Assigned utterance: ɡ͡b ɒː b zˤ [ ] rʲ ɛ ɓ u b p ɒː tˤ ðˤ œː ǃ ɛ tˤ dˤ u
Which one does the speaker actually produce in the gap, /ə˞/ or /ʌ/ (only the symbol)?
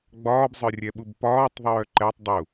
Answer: ə˞